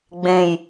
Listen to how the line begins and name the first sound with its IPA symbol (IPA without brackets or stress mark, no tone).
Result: ɡ͡b